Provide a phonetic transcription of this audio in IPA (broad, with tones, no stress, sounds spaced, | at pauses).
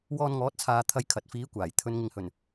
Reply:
w ɔː˧ n ŋ ɔː˨˥ t̚ t͡sʰ aː˨ t̪ʰ ɐ˧ j kʰ ɐ˨ t̚ f iː˨˥ kʷ aː˨˩ j t̪ʰ ɵ˨˧ n ŋ ɪ˨ ŋ h ɵ˨˩ n